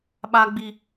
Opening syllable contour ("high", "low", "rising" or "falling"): high